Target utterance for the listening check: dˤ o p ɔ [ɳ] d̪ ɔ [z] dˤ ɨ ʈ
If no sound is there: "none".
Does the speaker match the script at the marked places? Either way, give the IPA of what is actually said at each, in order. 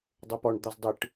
ɳ, z

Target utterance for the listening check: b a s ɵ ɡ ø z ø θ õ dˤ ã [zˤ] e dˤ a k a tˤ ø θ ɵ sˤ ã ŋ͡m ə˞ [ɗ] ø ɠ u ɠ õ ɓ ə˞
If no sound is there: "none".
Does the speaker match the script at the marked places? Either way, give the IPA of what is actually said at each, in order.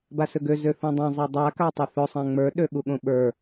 zˤ, ɗ

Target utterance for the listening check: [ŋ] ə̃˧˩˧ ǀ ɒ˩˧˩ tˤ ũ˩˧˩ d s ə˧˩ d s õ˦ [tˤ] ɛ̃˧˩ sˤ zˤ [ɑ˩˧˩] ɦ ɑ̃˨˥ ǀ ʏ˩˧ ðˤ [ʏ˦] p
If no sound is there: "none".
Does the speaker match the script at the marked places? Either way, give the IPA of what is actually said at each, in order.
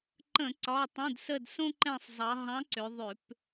ǃ, ǃ, ɑ˩˧, ʏ˧˩˧

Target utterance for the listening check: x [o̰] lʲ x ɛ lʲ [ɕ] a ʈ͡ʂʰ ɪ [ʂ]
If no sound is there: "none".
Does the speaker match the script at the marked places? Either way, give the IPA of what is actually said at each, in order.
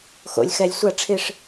o̰, sʷ, ʂ

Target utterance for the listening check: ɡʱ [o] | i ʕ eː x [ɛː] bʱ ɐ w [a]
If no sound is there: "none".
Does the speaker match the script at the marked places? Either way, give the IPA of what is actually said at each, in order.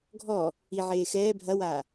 ɔ, ɛː, a

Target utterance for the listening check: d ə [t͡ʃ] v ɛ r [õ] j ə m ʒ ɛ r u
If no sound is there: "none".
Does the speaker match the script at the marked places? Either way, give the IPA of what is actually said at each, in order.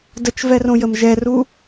t͡ʃ, õ

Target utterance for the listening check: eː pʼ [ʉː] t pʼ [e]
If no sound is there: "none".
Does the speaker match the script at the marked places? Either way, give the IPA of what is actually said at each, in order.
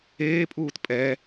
uː, ɛ

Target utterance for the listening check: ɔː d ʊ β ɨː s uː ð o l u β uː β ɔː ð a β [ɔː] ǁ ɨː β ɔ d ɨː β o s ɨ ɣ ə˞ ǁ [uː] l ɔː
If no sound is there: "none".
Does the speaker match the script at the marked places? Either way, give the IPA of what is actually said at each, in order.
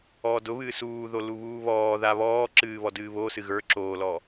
ɔː, oː

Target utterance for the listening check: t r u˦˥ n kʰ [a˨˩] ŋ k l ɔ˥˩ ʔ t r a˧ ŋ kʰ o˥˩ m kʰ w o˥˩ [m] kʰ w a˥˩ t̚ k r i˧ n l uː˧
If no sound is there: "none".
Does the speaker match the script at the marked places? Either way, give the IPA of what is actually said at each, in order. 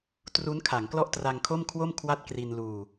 a˩˦, m

